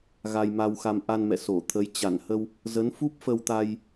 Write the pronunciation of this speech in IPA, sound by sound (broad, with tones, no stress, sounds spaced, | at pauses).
ɣ a˧ j m a˧ w x a˧ m ʔ a˧ n m ɛ̰˧˨ s o˧˩ t̪ʰ ə˨˦ j t͡ɕ a˧˩ n h ə˧ w | z ə˨˦ n f u˦˥ p̚ f ə˧ w t̪ a˧ j